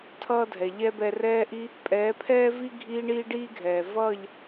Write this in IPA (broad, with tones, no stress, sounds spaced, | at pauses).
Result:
tʰ ʌː˦ dʱ ɛ˨ ʎ ɛ˦ b ɛ˧ r ɛː˧ ʔ i˧ | pʼ ɛː˨˦ pʰ ɛː˦ v i˦ ɡʱ iː˦ ɳ iː˦ ɖ iː˦ ɡʱ ɛː˨ v ʌː˦˨ ʎ